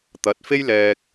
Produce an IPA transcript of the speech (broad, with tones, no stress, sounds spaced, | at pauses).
t̪ ɐ˨˥ t̚ f e˥ j l ɛː˧ k̚